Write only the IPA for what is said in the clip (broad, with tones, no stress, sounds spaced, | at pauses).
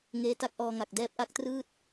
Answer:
ŋ eː˦˥ t a˦˥ k̚ ʔ ɔː˧ ŋ a˨˩ k̚ d ɛː˦˥ p̚ ʔ a˦˥ k̚ t r ɯː˥˩ t̚